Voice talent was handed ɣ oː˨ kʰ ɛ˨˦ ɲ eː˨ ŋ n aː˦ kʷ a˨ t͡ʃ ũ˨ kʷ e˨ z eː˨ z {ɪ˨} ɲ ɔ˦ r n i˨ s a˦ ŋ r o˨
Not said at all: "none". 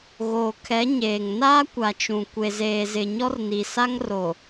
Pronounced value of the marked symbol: ɪ˨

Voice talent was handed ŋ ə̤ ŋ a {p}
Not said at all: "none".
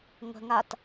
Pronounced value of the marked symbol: t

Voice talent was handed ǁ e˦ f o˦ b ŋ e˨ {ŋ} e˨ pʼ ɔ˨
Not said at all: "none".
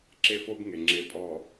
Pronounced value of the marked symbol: ŋ͡ǁ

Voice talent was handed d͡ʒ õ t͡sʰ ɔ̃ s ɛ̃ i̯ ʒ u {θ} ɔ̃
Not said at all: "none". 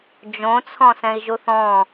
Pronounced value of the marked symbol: θ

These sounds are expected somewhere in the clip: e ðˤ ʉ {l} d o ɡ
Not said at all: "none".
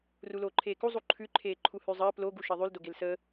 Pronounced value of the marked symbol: l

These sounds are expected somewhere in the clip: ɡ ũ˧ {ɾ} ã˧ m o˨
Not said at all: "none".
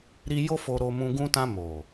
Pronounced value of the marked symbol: t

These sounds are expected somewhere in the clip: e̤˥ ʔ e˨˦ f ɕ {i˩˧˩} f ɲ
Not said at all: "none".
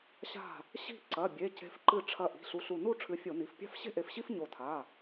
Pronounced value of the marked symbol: i˥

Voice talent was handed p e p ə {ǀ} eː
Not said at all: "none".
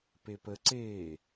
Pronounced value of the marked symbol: ǀ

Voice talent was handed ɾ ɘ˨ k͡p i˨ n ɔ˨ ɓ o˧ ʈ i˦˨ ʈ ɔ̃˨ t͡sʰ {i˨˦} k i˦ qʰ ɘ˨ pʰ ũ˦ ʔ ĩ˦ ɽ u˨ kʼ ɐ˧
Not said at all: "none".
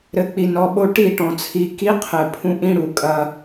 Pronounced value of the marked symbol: i˨˦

